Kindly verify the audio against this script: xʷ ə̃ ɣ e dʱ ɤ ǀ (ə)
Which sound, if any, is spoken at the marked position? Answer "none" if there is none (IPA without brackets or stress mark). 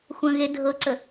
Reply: ə